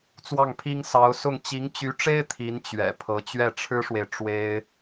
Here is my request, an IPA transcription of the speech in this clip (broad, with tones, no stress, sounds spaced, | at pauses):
t͡s w ɑ˥˩ ŋ pʰ i˥ ŋ s ɑ˧˥ ʊ̯ s ʊ˥˩ ŋ t͡ɕ i˧˥ ŋ t͡ɕ y˧˥ ʈ͡ʂ e˥ ɪ̯ t̪ʰ i˧˥ n t͡ɕ ɥ ɛ̰˨˩ pʰ ɤ˧˥ t͡ɕ ɥ ɛ˥˩ ʈ͡ʂʰ ɻ̩˥ ʂ w e˨ ɪ̯ ʈ͡ʂ w e˥ ɪ̯